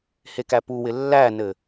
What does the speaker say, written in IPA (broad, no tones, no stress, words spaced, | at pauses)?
hekæpuwɪ lːænɘ